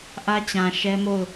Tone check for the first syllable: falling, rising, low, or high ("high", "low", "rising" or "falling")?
high